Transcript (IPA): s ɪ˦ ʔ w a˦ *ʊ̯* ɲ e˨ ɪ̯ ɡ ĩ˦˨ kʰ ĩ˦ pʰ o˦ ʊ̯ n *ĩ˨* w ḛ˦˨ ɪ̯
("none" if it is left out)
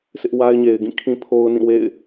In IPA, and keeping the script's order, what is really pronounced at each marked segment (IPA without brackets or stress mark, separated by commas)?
ɪ̯, ĩ˦˨